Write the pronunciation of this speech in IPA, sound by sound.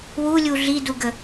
w u lʲ u ɮ i d u ɡ ə

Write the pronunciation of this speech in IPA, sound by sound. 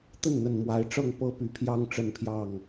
t̪ ə˥˨ n n̪ ə˨˩ n m w a˨˦ ɪ̯ ʈ͡ʂ ɤ˥˨ ŋ p ɤ˦ p y˨˩ pʰ j ɑ˦ ŋ ʈ͡ʂ ə˥˨ n pʰ j ɑ˥˨ ŋ

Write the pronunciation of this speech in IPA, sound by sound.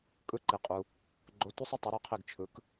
kʼ ɯ˨˥ ǃ i˩ qʼ u˩ | ɡ͡ǃ o˨˥ tʷ ə˦ sˤ ɯ˦ tˤ ɯ˩˧ ɾ y˧˩ qʰ i˧˩ ɡ t͡ʃʰ ɯ˩˧ k

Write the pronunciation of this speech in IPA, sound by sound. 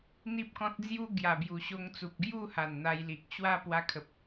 n̪ i˦ p̚ k ɔ̃˦ t̚ d͡z j u˦ ɡ j a˨˩ b j u˨˩ ɕ o˧ ŋ t͡s u˨ p̚ ɡ j u˥˧ h a˨˩ n n̪ a˧ j l i˨ k̚ ɕ w a˦ p w a˧ kʰ ə˨ p̚

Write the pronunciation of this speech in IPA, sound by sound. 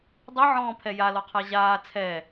dˤ i ʕ ɔ̃ː pʰ ɛ j a l ɔ qʰ a ʑ aː t͡sʰ ɛ

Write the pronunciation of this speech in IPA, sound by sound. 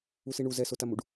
u s i ɳ u z ɛ s o t a m u ɖ

